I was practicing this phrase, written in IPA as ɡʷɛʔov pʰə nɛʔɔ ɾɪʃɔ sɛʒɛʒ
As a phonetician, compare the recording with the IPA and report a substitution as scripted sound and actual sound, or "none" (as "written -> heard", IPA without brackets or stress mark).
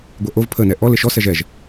ɾ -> l